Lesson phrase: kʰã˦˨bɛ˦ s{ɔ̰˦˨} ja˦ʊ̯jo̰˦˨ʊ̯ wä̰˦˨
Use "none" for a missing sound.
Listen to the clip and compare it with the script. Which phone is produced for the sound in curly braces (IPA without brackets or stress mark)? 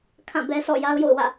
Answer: ɔ̰˦˨